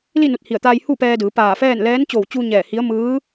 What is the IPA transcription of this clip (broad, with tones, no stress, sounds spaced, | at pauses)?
l i˥˨ n u˧˩ t̚ h i˧˩ ə̯ t̪ aː˧ j h u˥˨ p ɛː˧ d ɯː˩˧ p aː˧˩ f ɛː˥˨ n l ɛː˧˥ n t͡ɕ oː˧˩ w t͡ɕ uː˧ ɲ ɛː˧˩ h i˧˥ ə̯ m ɯː˧˥